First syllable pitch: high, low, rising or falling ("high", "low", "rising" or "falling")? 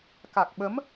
low